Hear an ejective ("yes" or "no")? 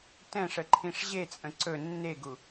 yes